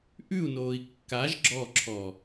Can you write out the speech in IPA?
ʔ ʉ u̯ n oː i̯ kː a ʒ ɡ͡ǁ ɔ ǁʰ ɔ

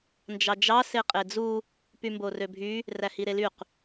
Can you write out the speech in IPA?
n d͡ʒ ɑ d͡ʒ ɑ s e qʼ e d͡z u | p y m b o r ø bʱ y | r æ h i ɾ e l y q

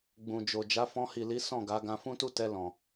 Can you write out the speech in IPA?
ɡ͡b ũ˨ d͡ʒ o˨ d͡ʒ a˨˦ f ɔ̃˧ h i˨ l i˨˦ s ɔ̃˦˨ ɡ a˨˦ ɡ ã˧ f ũ˦ t u˦ t ɛ˧ l ɔ̃˨

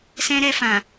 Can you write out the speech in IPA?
s ɛ̃˧ ɾ ɛ˧ f ã˨

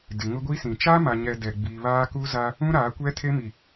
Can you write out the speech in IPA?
d ɪ˨ ŋ ʊ˦ ɡʷ i˦ s ĩ˨ t͡ʃ aː˦ m a˨ ɲ ɛ˨ d ɛ˨ ɡ͡b i˨ β aː˦ k u˦ z a˦ | ũ˦ ɾ aː˨˦ kʷ ɛ˦ tʰ e˦ m i˨

